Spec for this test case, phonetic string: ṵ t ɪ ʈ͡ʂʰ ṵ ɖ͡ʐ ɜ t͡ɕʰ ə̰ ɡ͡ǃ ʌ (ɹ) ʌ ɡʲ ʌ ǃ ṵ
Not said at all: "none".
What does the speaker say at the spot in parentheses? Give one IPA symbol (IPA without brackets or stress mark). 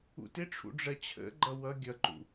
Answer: w